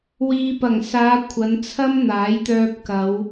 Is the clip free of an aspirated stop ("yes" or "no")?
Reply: no